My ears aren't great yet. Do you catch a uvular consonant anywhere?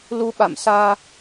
no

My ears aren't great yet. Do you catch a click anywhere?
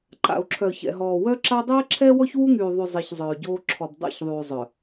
yes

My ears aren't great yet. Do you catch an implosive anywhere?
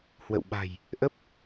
yes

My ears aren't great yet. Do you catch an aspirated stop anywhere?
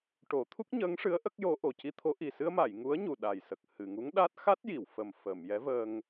yes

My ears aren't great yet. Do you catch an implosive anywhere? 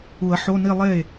no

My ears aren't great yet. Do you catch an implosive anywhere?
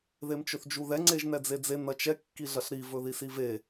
no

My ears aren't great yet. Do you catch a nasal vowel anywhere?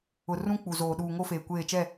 yes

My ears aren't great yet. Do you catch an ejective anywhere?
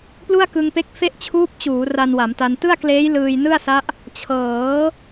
no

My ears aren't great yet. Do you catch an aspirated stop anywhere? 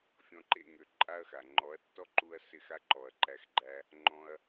no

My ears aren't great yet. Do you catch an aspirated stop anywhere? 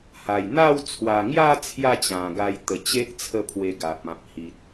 yes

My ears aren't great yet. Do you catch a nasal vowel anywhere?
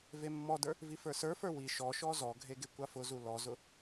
no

